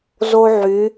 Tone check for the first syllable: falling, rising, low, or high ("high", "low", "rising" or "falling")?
high